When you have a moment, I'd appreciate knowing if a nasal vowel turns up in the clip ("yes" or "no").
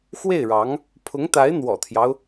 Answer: no